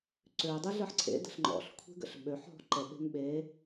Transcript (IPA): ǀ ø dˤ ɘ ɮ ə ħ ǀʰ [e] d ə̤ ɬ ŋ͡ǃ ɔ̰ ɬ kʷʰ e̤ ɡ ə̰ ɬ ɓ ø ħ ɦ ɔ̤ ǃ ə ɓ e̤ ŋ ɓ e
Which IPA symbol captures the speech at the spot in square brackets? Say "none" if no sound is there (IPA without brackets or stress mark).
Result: ḛ